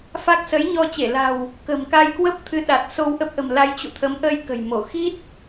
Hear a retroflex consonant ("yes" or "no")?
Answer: no